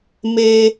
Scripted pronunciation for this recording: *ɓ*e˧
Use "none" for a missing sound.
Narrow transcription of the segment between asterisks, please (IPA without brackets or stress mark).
m